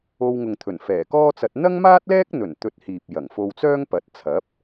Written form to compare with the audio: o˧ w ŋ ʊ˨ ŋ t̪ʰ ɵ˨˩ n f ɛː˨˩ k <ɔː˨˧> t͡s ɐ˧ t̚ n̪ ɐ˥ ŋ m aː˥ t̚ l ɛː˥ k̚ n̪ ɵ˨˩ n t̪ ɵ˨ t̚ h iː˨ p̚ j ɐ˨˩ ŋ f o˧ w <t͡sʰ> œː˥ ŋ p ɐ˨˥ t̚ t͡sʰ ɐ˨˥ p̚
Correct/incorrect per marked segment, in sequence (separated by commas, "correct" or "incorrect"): incorrect, incorrect